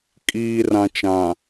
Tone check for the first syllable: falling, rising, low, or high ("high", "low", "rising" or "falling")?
low